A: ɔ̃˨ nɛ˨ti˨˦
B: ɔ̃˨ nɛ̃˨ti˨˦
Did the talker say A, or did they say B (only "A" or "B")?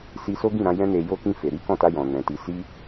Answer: B